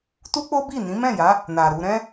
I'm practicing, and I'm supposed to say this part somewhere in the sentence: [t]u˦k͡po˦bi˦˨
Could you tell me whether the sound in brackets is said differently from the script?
no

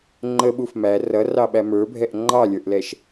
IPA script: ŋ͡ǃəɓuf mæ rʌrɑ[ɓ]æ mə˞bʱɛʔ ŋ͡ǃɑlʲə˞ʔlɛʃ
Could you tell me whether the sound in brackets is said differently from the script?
no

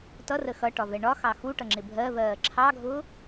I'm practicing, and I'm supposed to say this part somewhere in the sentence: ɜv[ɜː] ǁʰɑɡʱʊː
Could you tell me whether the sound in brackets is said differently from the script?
no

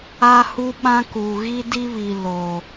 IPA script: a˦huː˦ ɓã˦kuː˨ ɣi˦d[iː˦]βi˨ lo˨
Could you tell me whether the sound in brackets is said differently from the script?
yes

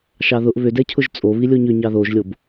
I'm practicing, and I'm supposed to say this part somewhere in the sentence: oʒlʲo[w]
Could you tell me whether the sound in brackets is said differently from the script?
yes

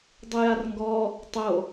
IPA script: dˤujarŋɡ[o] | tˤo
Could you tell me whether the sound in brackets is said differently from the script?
yes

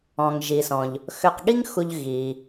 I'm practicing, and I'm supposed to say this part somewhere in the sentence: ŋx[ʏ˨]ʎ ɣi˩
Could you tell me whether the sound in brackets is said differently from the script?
yes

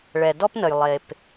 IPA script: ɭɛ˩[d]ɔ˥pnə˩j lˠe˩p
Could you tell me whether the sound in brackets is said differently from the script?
no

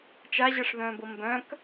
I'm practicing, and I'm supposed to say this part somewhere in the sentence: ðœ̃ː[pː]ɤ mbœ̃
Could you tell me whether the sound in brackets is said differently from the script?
yes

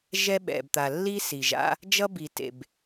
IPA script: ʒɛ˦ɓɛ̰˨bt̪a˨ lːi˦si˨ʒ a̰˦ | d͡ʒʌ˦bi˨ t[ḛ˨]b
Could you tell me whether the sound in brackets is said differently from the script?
no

